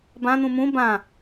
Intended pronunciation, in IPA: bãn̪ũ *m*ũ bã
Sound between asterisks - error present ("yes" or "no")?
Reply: no